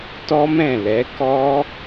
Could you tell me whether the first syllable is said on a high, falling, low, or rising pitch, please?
high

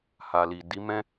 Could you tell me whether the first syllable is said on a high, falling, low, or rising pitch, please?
low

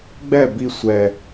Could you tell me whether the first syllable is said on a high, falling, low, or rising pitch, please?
falling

